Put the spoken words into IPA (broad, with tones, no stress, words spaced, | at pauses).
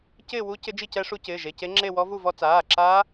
cɪː˥˧wu˦˥ cɪ˦˥d͡ʒi˥˧cɛ˦˥ʂu˦˥ cɪː˩˧˩ʒe˩˧˩ce˦˥ŋ͡ǁe˥˧ wɔ˦˥vu˥˧vɔ˦˥ t͡saː˩˧˩ǁaː˦˥